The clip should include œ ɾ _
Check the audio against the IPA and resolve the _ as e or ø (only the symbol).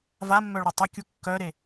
e